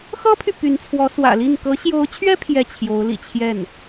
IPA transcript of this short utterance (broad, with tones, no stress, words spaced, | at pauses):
xɤ˥pʰy˨ py˧˥nt͡sʰwɔ˧˥swä̰˨˩li˥˩n kɤ˧˥ɕjo˧˥ʊ̯t͡ɕʰɥɛ˥ pʰjɛ˥˩t͡ɕʰjo˧˥ʊ̯lḭ˨˩t͡ɕʰjɛ˥˩n